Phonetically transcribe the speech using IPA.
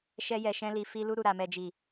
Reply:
ʃɛ˧jɛ˨ʃɛ̃˧li˨ fi˧lu˧ɾu˨ɾa˨ mɛ˨d͡ʒi˨

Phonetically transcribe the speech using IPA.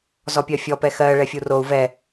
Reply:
zɔpʲɜfʲɔ pɛxɜ ɭɛfʲurou̯ vɛ

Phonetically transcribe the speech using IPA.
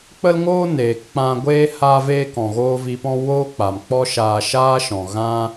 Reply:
k͡pə˦lŋoː˦ neː˨kk͡pã˧ɡʷeː˦ haː˧veː˧kɔ̃˨ɣoː˧ vi˧pɔ̃˦ woː˦k͡pa˨mk͡pɔ˦ʃaː˧ ʃaː˦ʃɔ̃˨ɣã˦

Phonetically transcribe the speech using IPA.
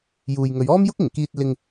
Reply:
juː˨jŋɵ˨˧ɥ ɔː˥mjʊ˥k̚ɪ˨˩ŋkiː˧t̚ lɪ˧ŋ

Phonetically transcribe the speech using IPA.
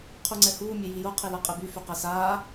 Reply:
qʰuŋ͡ǀɛhuː mʲejijo qʰilaqʼeby fyqɛsaː

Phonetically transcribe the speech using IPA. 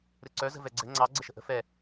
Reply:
ɾɘǀœ zə̤vɛɡ͡ǀɘ ŋ͡ǀɑ ɡ͡ǀəʃə̤ʔə̤ fɛ

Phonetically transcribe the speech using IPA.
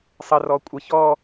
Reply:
sˤərɔ kʷʼə çɔ

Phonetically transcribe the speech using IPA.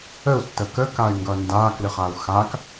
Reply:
əu̯tːə kəkay̯ŋɡʌ ndaklɨχau̯ xak

